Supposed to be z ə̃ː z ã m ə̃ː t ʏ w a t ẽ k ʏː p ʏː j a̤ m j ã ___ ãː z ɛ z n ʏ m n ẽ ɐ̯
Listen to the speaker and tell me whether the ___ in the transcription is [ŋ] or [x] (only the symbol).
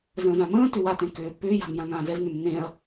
ŋ